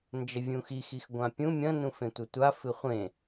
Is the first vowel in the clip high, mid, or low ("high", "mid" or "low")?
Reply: low